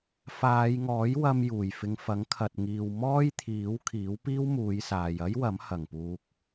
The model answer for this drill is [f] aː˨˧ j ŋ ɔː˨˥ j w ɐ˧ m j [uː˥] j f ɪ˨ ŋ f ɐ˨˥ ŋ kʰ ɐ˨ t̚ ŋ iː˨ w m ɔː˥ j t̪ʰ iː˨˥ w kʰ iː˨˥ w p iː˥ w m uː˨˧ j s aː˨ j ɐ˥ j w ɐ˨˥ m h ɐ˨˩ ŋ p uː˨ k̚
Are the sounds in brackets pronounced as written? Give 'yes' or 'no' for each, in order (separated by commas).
yes, no